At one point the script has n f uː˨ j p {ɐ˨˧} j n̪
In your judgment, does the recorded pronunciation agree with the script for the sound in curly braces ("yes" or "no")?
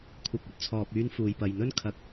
no